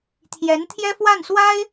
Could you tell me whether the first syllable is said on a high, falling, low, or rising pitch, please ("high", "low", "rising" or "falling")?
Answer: rising